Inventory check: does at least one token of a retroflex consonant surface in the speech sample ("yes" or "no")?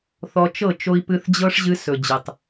yes